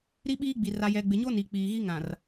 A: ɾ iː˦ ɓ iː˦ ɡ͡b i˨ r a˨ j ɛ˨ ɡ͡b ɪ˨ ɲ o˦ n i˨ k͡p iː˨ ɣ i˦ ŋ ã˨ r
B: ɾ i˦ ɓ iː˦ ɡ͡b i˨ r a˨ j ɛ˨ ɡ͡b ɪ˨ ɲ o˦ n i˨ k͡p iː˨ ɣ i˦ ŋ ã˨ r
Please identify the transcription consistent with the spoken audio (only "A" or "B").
B